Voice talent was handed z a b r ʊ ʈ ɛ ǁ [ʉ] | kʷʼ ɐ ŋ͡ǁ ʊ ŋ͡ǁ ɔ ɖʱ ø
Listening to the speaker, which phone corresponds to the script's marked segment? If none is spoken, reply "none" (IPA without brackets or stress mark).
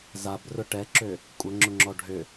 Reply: ø